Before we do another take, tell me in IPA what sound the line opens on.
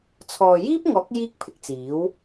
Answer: t͡sʰ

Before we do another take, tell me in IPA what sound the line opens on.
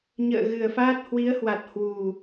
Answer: ɲ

